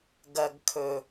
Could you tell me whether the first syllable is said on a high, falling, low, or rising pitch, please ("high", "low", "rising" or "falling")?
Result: low